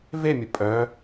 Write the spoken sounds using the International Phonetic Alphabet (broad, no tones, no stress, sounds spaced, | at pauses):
v e mʲ ə pʼ œ